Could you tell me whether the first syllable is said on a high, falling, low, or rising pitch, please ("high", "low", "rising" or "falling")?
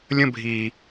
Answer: high